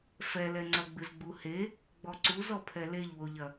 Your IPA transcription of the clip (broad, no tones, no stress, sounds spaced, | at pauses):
f ɛ l ɛ ŋ͡ǀ ɐ ɡ͡b ɨ z ɡ͡b u h e | ɡ͡b ɔ ǀ u z ɔ pʰ ɛ l e ʎ w o ʎ ɐ